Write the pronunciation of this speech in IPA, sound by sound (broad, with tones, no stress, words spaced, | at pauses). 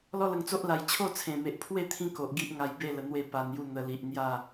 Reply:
lɔ˦lə˧ŋt͡so˦ʔla˧j t͡ɕʰo˥˧t͡sʰẽ˨˩me˨ʔpʰwe˥˧ t̪ʰĩ˦ko˨ʔ ɡi˦ʔ ŋa˧jbe˥˧lə˨˩ n̪we˥˧pa˧nju˥˧ n̪ə˨˩li˨ʔ n̪ja˥˧